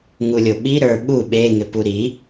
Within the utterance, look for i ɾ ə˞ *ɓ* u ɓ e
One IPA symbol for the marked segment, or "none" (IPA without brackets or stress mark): ɓ